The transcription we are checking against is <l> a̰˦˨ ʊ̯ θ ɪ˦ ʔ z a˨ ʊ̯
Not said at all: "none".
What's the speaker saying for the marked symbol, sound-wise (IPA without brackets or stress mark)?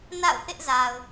n